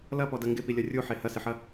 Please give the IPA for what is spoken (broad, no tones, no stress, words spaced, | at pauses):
lɐpɔdɐ ŋɡɪpilʲɐ rʲuħe hɐsɪħɐ